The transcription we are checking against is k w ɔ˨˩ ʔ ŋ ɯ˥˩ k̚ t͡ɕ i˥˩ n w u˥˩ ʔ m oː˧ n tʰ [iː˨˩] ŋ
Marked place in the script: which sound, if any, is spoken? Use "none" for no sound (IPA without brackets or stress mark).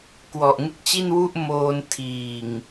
iː˨˩